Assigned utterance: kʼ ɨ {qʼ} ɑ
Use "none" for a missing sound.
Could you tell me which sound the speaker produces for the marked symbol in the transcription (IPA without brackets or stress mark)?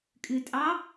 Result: tʼ